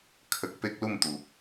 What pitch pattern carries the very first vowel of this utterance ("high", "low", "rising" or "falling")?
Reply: low